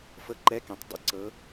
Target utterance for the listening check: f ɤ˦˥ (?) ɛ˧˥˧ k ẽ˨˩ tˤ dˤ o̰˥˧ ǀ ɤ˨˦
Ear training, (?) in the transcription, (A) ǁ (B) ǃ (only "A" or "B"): B